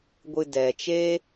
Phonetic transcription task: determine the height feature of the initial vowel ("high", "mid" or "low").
high